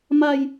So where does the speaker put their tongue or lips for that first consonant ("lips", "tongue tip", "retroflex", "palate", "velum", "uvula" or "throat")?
lips